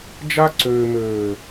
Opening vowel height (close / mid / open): open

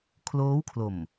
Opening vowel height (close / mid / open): mid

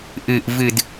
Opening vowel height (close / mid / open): close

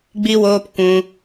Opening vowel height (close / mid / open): close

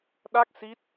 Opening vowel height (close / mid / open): open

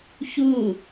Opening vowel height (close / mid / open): close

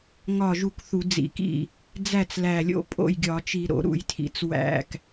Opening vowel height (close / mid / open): open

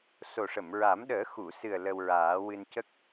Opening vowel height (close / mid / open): mid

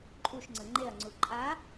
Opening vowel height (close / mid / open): close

